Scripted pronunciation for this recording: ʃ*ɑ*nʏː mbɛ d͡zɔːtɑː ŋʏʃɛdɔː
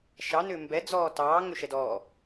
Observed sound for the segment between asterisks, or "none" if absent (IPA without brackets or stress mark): ɑ